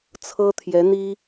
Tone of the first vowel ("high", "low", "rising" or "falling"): high